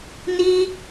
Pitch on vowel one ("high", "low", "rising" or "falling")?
high